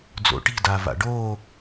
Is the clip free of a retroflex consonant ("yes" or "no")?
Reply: no